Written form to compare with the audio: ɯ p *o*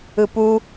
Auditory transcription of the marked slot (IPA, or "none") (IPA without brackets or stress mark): u